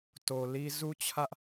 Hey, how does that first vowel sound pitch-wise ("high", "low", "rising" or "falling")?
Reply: low